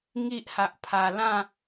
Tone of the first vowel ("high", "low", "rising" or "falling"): high